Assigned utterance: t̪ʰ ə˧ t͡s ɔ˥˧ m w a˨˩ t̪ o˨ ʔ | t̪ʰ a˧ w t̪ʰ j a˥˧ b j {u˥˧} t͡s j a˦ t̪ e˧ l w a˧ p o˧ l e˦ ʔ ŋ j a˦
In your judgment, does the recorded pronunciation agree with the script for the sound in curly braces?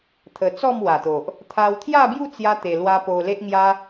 yes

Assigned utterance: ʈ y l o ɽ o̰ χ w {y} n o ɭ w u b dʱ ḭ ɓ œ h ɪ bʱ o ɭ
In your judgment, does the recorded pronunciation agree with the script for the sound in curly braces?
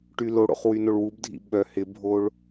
yes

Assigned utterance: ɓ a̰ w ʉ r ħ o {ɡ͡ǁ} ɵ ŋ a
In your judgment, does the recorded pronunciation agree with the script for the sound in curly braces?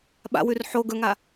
no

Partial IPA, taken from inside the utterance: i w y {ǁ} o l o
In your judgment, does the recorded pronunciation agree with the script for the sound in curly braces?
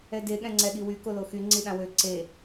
no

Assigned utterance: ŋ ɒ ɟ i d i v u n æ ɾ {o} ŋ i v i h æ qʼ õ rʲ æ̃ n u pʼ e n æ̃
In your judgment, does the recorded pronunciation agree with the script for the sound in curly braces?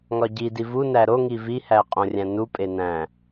yes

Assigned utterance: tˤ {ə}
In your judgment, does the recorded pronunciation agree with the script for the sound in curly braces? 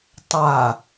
no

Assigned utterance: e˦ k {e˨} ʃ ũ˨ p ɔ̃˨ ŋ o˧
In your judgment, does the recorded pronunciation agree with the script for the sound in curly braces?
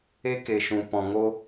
yes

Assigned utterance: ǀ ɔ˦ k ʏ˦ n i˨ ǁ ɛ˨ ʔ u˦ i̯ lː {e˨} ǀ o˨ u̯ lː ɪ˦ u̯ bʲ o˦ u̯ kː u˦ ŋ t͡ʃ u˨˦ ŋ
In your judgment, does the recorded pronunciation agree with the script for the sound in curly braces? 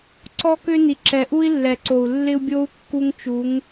no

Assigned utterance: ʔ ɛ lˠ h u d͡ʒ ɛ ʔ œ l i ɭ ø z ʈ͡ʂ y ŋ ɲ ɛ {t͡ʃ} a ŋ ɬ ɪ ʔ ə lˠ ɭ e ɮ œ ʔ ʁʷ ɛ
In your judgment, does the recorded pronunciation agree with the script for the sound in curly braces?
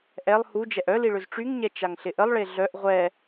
yes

